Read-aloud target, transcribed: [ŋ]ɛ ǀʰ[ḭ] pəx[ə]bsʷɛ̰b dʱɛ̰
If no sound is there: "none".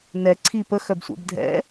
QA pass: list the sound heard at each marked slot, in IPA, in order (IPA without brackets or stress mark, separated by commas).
n, i, œ